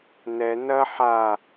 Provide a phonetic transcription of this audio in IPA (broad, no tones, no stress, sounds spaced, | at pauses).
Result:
n ɛ n ɐ ħ a